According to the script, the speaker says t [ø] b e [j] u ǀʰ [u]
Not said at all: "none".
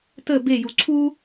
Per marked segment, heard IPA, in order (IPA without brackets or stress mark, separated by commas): ə, j, u